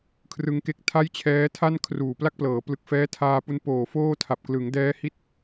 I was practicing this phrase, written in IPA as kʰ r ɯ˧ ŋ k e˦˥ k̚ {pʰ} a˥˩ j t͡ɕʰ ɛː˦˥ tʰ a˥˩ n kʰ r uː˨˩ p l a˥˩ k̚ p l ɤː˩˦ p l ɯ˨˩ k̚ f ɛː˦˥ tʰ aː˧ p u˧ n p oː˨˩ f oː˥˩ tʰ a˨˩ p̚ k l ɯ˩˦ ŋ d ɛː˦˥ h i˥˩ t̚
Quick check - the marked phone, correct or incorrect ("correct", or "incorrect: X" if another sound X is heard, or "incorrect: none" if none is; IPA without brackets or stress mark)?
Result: incorrect: tʰ